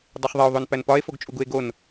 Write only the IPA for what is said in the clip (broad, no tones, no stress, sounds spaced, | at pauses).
dˤ e χ ðˤ e o̯ ðˤ o n p æ n p ɒ e̯ f o ɡ t͡ʃʼ u ɡ u e̯ ɡ o n